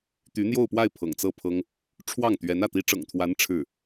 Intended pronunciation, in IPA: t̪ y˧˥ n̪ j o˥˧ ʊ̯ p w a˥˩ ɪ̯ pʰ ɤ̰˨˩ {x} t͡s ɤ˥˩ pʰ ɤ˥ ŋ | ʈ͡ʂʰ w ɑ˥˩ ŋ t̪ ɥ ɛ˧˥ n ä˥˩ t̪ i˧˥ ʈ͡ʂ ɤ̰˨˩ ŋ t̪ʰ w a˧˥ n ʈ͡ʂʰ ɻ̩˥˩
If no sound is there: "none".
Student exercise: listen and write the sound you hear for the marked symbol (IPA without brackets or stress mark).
ŋ